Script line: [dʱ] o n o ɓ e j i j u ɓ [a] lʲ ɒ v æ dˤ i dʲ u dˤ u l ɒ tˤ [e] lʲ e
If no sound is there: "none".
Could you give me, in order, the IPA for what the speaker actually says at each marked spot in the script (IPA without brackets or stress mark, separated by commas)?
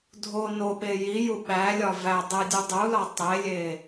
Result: dʱ, æ, e